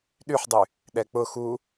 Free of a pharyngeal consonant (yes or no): no